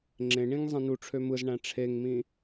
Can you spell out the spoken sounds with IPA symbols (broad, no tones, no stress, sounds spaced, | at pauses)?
ŋ͡ǁ ẽ ɳ ĩ ŋ zˤ ĩ n u ʈ͡ʂʰ ø m ɯ z ɳ æ̃ ʈ͡ʂʰ e ŋ m ĩ